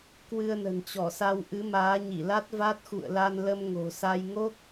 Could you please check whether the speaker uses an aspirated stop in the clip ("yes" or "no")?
no